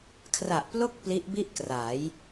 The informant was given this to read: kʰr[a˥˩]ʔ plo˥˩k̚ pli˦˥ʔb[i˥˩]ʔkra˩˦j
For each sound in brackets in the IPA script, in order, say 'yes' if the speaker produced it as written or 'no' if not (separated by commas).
no, yes